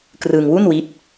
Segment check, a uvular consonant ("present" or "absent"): absent